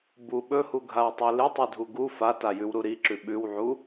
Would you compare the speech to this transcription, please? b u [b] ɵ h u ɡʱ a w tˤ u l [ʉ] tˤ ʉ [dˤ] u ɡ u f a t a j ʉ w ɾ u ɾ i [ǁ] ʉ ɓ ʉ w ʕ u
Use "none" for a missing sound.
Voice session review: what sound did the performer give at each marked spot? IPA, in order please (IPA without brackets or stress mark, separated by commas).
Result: ɓ, ɨ, dʱ, ǁ